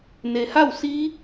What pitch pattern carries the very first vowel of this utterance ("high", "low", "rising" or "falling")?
low